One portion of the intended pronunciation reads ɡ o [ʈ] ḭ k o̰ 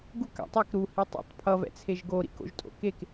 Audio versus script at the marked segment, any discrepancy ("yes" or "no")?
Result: yes